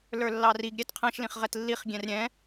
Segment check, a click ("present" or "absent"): absent